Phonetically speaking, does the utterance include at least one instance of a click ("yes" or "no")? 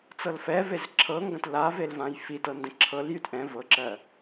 yes